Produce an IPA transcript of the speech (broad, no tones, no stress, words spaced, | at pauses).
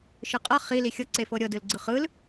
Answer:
ʃɯqʼɤ χi lixʲɤ ǀefɤɾʲɤ dɯlɡ͡ǀɯχɯl